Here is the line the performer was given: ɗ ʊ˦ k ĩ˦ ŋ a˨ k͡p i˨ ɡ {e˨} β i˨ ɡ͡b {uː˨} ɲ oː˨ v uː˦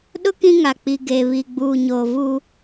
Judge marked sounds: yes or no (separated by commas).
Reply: yes, yes